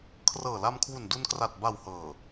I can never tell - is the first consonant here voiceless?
yes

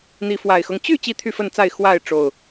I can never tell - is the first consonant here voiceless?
no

